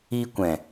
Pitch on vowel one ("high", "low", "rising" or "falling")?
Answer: high